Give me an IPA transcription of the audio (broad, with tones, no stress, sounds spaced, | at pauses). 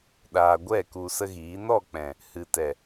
ɗ aː˨ ɡʷ ɛ˦˨ k u˧ s ə˦ ɣ iː˨˦ n ɔ˦˨ k͡p ɛ̃˨ | h ɨ˨ t ɛ˨